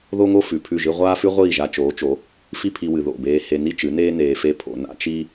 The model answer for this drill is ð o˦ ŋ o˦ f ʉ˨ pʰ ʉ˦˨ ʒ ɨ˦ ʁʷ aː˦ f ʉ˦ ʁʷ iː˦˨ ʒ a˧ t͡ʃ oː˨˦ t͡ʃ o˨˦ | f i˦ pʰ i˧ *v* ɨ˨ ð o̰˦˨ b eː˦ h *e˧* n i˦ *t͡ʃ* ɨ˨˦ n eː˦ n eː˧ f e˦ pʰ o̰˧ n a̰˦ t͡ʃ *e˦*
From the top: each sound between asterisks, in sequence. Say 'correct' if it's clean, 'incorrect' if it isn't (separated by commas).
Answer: incorrect, correct, correct, incorrect